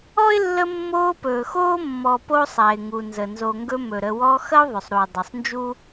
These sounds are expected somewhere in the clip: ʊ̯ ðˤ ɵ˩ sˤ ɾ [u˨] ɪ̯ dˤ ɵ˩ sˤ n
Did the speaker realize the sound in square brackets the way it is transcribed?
no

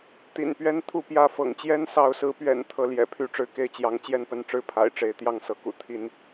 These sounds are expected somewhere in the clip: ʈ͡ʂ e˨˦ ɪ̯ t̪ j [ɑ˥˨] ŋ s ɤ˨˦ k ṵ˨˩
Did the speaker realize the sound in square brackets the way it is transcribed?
yes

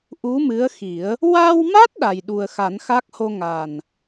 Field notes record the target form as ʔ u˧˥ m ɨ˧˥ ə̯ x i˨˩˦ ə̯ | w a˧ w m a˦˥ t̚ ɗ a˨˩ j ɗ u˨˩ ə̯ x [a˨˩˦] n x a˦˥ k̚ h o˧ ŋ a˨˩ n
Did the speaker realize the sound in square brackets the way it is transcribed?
yes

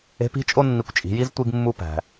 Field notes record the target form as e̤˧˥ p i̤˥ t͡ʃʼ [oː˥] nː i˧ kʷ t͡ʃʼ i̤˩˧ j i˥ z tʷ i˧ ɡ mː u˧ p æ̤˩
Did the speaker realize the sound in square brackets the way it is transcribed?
no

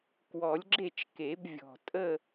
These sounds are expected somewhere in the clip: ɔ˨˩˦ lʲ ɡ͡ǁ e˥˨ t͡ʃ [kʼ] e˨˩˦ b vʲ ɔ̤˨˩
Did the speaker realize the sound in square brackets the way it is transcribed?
no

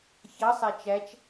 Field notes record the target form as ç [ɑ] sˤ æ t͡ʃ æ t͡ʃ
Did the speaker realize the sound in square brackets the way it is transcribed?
yes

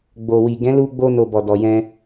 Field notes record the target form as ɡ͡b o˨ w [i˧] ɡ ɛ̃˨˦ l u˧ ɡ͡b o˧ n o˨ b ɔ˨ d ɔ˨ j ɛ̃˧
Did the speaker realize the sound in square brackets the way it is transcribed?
no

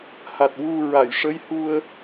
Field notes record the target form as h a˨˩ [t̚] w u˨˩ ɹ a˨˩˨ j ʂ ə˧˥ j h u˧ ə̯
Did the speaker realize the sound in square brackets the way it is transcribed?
yes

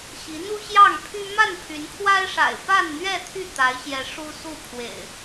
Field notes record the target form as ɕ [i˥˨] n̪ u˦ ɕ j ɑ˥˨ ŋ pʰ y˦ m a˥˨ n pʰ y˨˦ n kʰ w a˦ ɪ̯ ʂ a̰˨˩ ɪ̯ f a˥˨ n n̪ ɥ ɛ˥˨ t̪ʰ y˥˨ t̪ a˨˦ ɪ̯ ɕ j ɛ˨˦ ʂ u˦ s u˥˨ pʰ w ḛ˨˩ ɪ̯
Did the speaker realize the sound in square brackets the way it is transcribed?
no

